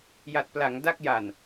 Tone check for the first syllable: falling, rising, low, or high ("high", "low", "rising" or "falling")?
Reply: low